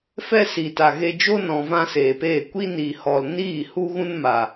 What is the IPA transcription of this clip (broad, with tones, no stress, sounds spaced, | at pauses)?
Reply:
f ɛ˦ s i˨ t a˨ ɣ e˧ d͡ʒ o˦ n ɔ̃˧ v ã˦ s eː˨ p eː˦˨ kʷ i˦ n i˨ h ɔ˨ l n iː˦˨ h u˦ ɣ ũ˦ n m a˨